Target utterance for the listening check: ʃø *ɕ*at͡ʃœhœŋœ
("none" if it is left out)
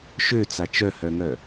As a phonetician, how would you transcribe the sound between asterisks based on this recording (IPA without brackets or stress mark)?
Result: t͡s